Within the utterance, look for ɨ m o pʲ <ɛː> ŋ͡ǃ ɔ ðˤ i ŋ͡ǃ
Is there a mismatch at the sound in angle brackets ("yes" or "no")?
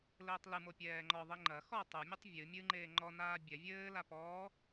no